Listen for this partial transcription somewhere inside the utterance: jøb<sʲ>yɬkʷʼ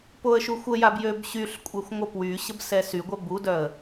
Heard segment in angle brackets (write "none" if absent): ɕ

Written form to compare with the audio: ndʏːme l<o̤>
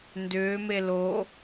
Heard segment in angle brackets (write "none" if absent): o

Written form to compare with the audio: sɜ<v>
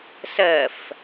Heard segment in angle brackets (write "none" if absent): f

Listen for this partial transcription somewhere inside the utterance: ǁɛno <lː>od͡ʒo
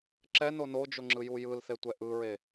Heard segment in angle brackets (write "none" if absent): n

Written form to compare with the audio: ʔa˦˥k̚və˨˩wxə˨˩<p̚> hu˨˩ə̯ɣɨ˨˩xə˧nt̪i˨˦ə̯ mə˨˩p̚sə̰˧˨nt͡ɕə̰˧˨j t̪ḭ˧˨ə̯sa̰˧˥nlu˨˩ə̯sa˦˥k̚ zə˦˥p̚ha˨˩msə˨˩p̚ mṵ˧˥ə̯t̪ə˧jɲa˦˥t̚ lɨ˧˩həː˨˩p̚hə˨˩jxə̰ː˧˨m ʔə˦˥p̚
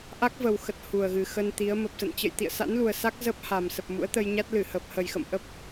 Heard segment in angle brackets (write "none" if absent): t̚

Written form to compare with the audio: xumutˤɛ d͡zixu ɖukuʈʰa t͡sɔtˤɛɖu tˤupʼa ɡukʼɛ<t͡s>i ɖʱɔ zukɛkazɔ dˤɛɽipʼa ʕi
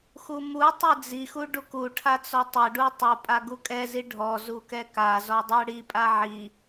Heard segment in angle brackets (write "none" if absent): z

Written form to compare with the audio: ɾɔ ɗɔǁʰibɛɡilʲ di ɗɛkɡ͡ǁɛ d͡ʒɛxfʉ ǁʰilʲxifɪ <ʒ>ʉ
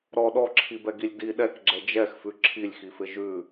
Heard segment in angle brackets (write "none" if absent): ʒ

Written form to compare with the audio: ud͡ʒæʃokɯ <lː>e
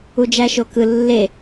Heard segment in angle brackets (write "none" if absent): lː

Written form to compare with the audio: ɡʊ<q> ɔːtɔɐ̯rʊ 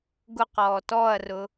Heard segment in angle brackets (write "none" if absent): q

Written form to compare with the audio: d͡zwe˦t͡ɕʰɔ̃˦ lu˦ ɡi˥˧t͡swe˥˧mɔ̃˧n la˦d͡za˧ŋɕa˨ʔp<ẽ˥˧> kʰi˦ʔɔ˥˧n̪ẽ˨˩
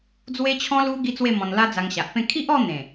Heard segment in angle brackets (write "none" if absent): ẽ˥˧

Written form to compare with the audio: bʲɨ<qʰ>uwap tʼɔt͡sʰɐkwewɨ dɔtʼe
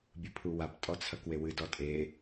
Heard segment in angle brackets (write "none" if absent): pʰ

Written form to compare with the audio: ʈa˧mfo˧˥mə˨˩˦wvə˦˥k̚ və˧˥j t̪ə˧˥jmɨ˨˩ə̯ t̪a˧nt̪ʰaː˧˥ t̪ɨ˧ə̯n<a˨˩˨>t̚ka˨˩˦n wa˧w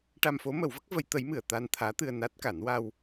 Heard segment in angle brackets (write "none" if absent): a˦˥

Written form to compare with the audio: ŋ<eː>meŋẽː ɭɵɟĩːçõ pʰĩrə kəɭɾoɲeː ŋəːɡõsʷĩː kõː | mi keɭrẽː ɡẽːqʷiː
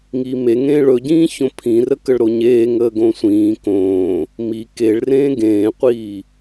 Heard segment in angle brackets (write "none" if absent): iː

